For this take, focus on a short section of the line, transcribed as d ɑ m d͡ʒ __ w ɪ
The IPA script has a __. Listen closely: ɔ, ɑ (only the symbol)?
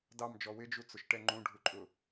ɔ